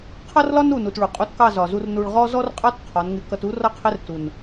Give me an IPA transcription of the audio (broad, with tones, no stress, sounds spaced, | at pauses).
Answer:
qʰ ʌ˦ r l ɒ˦ n u˨ n u˨ t ɭ u˨ qʼ u˧ t k ɑ˦˨ z ɒ˨ z u˧ r n u˧ ɭ ʁ ɔ˦ z ɔ˦ r qʼ ɑ˦ t qʰ ɒ˨˦ n ŋ ɪ˧ k ʌ˧ t u˦ r ʌ˦ qʰ ɪ˦ r t u˨ n